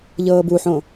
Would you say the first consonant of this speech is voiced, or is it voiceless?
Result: voiced